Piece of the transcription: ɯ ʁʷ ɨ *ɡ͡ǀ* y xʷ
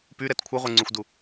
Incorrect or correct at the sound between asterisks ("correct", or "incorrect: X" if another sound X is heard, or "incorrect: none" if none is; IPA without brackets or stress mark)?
incorrect: ŋ͡ǀ